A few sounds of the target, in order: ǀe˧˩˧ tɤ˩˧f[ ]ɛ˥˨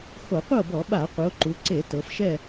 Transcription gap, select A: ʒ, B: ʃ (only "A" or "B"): B